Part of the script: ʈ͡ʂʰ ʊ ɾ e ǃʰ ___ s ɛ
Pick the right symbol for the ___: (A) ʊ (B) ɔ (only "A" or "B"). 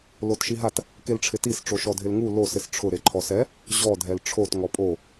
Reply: B